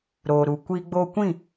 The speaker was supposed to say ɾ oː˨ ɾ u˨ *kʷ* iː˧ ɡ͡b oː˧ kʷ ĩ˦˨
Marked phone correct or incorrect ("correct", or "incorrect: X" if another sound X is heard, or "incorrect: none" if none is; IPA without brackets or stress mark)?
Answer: correct